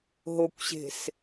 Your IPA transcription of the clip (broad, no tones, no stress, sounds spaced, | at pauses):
ɦ o kʷ ɕ e̤ s